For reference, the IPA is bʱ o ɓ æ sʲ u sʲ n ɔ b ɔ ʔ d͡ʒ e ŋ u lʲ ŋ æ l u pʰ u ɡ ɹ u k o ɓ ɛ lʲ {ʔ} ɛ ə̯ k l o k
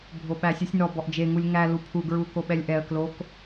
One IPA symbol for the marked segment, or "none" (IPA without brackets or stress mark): ʔ